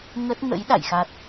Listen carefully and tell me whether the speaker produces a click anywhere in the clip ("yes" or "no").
no